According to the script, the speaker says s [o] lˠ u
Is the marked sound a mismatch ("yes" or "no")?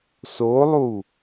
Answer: no